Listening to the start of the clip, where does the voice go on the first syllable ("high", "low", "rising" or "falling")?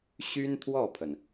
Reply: high